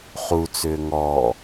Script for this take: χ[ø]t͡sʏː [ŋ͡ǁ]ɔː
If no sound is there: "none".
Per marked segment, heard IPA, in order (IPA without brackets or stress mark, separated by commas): u, ŋ